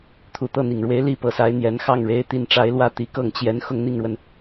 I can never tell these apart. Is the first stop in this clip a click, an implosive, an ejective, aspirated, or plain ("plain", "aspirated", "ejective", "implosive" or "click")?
aspirated